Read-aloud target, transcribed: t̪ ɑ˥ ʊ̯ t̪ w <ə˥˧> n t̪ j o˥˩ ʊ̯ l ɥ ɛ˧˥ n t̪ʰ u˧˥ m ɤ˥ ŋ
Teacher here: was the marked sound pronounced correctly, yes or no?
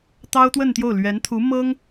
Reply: yes